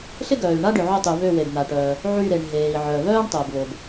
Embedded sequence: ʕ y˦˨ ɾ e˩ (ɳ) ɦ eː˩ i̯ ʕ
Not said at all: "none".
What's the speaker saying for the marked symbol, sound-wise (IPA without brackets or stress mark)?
ɳ